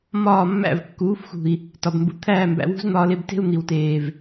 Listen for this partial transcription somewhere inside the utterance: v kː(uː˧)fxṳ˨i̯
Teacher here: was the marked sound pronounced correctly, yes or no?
no